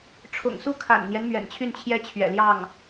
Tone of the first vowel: low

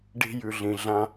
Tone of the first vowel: low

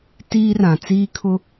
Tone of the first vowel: high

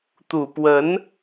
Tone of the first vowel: low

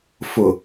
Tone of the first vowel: low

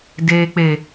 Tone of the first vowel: high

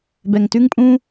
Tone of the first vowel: low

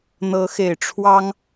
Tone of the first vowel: rising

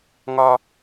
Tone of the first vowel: high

